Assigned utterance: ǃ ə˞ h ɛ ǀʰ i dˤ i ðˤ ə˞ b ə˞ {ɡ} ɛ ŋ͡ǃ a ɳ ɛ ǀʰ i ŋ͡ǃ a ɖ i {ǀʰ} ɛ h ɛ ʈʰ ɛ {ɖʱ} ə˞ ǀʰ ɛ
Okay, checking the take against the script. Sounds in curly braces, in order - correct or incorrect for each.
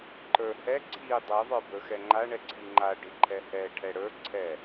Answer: incorrect: x, incorrect: ǃʰ, incorrect: ɽ

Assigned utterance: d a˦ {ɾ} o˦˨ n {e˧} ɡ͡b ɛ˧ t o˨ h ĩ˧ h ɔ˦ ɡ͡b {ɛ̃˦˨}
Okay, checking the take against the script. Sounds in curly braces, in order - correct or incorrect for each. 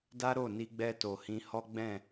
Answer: correct, incorrect: i˧, correct

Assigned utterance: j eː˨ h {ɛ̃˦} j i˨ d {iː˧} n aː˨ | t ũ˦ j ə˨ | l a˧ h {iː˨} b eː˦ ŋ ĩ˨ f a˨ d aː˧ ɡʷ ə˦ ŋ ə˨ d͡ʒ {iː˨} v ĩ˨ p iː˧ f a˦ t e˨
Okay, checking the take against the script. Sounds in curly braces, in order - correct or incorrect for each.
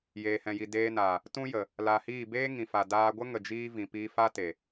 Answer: incorrect: ɛ̃˨, incorrect: eː˧, incorrect: iː˦˨, incorrect: iː˧

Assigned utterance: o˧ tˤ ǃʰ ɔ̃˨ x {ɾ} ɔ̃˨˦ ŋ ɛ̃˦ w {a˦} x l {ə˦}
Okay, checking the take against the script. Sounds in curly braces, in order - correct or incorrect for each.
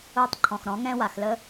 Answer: correct, incorrect: a˨, correct

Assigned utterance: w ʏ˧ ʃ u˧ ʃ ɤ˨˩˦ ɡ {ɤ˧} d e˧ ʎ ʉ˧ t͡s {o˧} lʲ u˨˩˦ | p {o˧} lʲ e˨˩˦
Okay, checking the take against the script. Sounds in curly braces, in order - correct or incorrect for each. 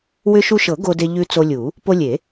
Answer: incorrect: o˧, correct, correct

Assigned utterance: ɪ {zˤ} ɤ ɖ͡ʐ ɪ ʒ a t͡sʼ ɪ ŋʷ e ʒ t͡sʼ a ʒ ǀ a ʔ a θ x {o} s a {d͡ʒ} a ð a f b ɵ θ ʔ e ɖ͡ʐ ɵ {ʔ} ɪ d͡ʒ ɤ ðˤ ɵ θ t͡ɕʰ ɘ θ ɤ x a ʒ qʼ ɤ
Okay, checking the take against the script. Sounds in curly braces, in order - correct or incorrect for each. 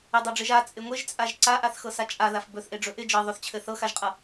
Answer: incorrect: dˤ, incorrect: ɤ, incorrect: t͡ʃʼ, correct

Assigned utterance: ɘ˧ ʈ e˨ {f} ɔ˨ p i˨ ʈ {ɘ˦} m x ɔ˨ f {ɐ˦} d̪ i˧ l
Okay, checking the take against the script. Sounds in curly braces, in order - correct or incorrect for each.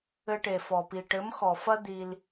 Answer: correct, incorrect: ɘ˨˦, correct

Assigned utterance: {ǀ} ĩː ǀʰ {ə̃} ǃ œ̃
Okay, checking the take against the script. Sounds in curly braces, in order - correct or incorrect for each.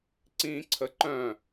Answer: correct, incorrect: ə

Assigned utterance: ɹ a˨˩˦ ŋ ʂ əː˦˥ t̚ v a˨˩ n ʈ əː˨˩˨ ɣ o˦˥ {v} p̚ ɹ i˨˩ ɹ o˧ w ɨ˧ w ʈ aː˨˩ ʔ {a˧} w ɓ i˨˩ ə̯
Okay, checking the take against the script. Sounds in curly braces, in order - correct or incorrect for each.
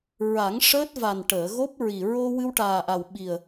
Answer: incorrect: none, incorrect: a˨˩

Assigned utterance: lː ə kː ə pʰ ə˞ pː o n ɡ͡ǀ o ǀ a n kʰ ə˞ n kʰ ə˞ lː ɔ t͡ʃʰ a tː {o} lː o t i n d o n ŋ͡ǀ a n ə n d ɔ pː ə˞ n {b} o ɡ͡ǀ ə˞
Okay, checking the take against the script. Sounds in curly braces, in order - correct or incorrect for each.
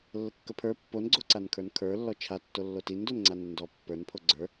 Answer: correct, incorrect: pʰ

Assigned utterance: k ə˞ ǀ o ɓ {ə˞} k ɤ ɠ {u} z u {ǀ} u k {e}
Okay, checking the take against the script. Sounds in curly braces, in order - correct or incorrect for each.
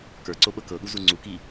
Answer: incorrect: ɤ, correct, incorrect: ŋ͡ǀ, incorrect: i

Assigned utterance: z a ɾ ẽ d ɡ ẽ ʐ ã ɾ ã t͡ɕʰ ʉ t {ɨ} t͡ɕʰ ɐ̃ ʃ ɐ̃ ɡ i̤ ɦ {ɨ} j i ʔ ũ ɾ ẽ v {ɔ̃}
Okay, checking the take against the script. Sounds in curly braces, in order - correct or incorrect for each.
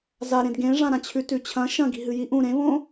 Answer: incorrect: ʉ, correct, incorrect: õ

